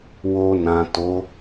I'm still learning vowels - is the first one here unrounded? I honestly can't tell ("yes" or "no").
no